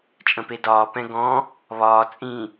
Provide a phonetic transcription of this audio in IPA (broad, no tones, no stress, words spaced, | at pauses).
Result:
t͡ʃʼə̃pedɒː pɛ̃ɡɔ̃ | βɒː t͡sʼĩ